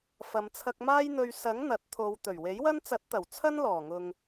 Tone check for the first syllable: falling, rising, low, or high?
low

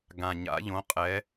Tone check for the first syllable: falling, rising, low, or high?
low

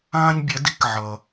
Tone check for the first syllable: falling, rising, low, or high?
high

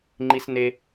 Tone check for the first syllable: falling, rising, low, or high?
high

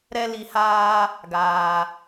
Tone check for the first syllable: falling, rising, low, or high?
high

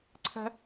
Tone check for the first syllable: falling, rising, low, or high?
high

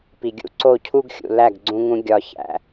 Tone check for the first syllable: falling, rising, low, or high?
low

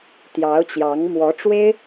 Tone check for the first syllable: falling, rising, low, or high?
rising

